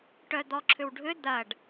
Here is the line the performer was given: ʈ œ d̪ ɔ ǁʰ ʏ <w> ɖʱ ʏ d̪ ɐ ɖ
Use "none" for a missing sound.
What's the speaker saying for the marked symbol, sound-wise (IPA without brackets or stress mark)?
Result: w